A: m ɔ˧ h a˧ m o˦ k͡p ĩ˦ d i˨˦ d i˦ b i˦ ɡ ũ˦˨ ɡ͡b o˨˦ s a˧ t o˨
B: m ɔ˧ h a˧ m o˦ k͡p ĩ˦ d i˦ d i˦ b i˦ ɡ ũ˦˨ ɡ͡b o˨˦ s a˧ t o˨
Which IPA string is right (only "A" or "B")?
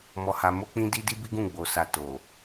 B